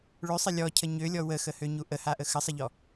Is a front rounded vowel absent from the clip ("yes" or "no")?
no